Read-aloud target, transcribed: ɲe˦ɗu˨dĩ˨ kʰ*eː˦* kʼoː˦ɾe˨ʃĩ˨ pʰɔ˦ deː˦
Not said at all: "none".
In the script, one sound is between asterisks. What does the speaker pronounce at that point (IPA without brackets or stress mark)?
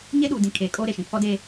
eː˨